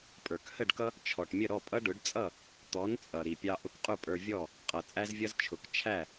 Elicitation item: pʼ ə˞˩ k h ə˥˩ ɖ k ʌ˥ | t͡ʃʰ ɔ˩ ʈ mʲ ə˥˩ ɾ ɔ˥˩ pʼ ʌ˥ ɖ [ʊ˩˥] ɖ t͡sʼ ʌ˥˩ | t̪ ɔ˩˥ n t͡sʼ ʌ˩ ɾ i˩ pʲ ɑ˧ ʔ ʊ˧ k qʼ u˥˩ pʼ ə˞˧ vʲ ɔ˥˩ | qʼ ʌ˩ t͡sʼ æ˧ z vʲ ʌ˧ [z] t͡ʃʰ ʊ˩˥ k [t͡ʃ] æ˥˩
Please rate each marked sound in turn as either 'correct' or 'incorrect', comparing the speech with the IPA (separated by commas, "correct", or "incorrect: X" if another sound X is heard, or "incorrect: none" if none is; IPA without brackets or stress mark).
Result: correct, correct, incorrect: t͡ʃʰ